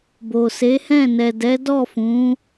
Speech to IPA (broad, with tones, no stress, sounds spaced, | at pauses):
b o˨ s e˨˦ h ɛ̃˦˨ n ɛ˨ d ɛ˨˦ d ɔ˦˨ f ũ˨˦